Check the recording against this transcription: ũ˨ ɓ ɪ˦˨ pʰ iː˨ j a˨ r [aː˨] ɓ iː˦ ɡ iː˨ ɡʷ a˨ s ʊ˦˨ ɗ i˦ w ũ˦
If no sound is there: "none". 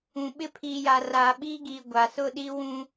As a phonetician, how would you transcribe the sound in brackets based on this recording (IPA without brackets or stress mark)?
aː˨